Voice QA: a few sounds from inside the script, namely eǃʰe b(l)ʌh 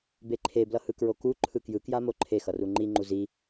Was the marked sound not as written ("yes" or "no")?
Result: no